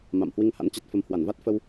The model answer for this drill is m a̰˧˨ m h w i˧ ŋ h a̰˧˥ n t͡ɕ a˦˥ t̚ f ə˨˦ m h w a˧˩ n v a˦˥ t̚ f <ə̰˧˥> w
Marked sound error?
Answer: yes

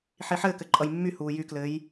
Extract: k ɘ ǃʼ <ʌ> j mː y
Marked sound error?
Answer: no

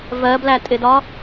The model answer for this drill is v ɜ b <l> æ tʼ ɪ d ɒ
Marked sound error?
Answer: no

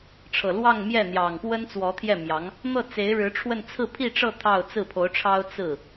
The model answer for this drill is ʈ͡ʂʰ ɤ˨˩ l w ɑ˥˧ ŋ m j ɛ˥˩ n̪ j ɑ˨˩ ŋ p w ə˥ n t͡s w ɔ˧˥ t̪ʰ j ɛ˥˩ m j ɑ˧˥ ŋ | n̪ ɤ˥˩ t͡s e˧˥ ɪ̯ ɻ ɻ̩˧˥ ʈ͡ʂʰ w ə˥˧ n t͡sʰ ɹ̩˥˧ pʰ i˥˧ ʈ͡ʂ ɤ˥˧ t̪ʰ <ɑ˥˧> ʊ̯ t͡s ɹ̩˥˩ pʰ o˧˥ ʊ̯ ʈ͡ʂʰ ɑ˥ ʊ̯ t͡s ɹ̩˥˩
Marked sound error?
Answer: no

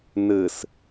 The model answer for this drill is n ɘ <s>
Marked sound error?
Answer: no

